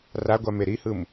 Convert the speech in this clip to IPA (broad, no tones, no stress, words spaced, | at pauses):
raɡʷame ɾihɯm